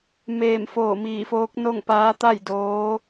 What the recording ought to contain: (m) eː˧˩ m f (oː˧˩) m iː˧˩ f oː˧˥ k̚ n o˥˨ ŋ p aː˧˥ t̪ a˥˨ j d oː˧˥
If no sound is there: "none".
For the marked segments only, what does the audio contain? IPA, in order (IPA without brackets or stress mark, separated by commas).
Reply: m, oː˧˩